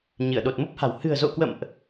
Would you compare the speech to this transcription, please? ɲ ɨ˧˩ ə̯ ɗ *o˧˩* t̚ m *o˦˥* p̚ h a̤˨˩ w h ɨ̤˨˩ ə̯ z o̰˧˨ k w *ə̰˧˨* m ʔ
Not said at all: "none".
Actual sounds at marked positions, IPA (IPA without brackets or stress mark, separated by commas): o˨˩, o˦˥, ə̰˧˨